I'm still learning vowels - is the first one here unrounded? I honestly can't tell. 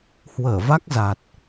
yes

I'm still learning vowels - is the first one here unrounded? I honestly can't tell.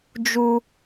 no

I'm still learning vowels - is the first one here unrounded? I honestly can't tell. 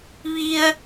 yes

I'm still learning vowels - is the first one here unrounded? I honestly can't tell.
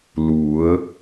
no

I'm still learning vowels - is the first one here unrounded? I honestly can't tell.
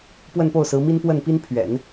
yes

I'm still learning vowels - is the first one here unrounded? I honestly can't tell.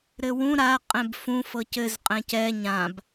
yes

